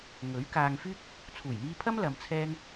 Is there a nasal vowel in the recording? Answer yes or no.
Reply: no